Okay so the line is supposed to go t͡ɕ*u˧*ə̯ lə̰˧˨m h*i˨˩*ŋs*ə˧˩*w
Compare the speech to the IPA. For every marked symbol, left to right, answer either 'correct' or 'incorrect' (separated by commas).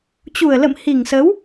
incorrect, correct, incorrect